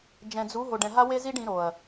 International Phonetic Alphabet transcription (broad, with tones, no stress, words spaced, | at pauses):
d͡ʒɛ̃˨d͡zu˨˦ ɦo˨ɖɛ̃˨ ɦa˦we˦ zi˦ɖ ĩ˨˦ɾo˨ɐ̯